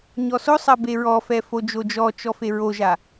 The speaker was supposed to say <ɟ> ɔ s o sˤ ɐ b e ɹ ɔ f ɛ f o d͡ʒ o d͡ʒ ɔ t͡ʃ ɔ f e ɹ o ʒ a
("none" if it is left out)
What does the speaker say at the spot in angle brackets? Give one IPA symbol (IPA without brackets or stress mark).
ɲ